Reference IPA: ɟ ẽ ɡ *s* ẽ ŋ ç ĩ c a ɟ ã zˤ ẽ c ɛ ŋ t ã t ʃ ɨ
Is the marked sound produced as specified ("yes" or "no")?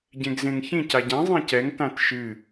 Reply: no